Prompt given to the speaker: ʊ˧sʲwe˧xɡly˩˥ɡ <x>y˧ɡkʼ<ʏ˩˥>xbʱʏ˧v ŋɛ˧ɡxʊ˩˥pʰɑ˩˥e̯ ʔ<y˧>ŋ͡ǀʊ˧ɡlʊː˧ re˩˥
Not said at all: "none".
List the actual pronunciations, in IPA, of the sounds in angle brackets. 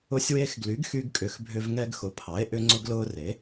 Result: x, ʏ˩˥, ʏ˧

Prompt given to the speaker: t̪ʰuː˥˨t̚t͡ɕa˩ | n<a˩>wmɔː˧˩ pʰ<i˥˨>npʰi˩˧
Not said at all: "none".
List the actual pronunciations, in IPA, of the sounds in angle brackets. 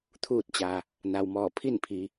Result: a˩, i˥˨

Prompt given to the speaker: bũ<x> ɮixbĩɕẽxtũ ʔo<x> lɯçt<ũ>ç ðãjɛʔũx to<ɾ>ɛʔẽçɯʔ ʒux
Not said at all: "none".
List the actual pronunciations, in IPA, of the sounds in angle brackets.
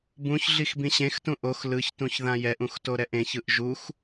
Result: ç, x, ũ, ɾ

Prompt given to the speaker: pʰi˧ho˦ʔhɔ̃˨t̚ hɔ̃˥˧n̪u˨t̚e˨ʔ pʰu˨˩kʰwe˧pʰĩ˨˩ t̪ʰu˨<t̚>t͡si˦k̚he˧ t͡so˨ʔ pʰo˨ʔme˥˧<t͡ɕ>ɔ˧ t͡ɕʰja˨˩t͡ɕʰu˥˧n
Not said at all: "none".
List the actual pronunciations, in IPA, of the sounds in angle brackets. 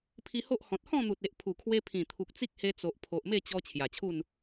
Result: k̚, t͡ɕ

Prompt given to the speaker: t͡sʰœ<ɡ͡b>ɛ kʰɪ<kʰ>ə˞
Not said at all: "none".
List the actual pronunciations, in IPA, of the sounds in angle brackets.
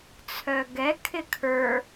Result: ɡ, kʰ

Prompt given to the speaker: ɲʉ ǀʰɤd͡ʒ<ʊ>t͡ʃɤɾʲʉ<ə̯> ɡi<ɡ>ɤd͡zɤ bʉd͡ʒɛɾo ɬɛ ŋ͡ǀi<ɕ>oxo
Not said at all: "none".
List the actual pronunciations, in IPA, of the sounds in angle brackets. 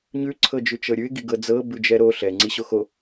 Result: ʉ, ɪ̯, ɡ, ɕ

